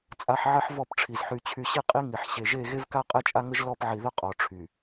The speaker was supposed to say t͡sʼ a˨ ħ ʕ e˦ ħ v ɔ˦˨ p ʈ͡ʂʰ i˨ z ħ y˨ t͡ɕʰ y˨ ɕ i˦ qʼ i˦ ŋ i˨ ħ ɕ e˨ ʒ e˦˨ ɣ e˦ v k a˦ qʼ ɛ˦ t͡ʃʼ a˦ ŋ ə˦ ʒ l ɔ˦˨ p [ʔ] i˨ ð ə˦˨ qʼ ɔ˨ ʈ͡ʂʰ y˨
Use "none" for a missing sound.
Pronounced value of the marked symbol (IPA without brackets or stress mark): ʕ